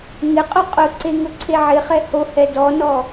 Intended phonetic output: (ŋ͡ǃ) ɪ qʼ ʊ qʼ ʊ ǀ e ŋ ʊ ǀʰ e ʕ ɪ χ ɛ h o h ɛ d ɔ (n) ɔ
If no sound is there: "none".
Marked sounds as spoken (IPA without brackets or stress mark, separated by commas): ŋ, n